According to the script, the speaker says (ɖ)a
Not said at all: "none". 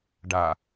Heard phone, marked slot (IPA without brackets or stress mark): ɖ